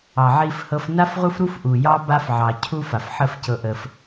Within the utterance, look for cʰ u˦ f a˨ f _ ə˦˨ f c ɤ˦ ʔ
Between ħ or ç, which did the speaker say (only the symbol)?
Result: ħ